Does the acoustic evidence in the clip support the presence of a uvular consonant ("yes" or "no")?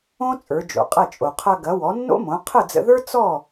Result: yes